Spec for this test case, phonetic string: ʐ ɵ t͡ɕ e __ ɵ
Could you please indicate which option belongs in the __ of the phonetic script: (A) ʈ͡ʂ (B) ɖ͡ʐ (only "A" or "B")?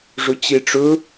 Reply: A